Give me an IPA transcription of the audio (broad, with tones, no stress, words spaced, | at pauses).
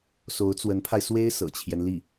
so˧˥ʊ̯t͡swə˧˥npʰa˧ɪ̯ swe˥ɪ̯ sɤ̰˨˩t͡ɕʰjɛ˦nli˥˩